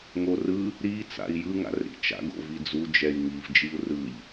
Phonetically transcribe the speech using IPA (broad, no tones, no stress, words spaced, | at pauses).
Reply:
ŋorɯ | ɾi t͡sa̰i̯jɯ ŋa̰rɾḭt͡ʃa̰ɡ o̰vid͡zu d͡ʒɛi̯ŋiv d͡ʒiu̯rɯʎ